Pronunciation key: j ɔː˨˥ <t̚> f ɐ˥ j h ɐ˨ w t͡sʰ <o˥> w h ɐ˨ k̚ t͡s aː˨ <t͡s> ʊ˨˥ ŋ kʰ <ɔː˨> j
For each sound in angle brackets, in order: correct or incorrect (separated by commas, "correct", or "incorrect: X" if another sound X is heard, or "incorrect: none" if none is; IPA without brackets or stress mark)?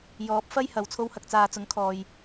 incorrect: p̚, incorrect: o˧, correct, correct